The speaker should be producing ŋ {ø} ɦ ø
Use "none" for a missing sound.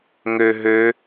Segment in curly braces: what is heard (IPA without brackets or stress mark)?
ø